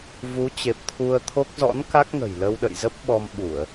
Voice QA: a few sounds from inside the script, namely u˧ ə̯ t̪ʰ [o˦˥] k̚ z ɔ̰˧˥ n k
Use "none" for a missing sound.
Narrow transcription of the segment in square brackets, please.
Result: o˦˥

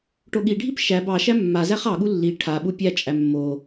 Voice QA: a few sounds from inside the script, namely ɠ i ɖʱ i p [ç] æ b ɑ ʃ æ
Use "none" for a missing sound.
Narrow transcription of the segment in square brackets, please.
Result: ʃ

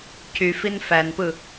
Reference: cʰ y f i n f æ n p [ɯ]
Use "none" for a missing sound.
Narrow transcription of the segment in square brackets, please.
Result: ɯ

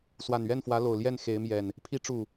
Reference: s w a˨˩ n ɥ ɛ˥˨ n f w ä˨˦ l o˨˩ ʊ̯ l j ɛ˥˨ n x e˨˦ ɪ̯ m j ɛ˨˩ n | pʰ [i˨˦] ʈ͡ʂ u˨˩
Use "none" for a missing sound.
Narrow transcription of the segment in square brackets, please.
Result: i˨˦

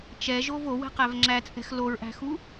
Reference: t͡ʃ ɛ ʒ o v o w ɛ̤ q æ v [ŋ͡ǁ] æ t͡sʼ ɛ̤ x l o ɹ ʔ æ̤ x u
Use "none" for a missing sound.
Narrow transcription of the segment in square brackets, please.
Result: ŋ͡ǁ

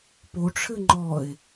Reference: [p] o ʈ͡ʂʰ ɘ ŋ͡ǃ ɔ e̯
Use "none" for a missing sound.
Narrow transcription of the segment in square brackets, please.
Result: p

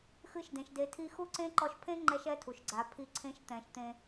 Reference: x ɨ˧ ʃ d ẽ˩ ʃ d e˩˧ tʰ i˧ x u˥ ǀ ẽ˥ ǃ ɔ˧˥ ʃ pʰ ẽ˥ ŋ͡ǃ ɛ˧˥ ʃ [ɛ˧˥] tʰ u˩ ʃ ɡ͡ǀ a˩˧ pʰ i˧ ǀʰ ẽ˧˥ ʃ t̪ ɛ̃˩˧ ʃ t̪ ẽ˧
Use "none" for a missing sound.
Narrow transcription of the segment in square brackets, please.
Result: ɛ˧˥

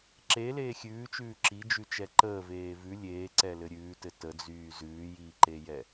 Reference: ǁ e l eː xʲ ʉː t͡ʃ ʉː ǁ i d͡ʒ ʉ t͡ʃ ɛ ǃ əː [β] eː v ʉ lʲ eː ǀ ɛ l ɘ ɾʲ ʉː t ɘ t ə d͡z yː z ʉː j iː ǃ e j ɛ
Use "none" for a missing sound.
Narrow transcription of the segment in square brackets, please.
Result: v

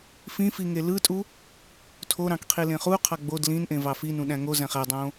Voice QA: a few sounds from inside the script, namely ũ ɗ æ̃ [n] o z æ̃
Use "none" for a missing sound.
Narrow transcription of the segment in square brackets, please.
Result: ŋ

